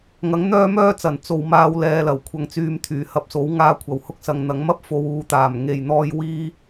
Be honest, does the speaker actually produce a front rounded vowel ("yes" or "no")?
yes